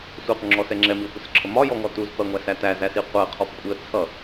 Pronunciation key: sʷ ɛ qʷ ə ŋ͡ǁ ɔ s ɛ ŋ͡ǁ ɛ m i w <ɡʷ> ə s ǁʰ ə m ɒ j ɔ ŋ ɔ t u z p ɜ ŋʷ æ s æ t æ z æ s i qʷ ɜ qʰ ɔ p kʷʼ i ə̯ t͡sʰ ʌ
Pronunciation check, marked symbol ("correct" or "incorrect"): incorrect